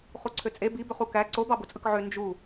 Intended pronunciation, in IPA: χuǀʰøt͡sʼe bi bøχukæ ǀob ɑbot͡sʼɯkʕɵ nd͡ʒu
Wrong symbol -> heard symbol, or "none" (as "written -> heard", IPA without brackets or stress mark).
ɵ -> ø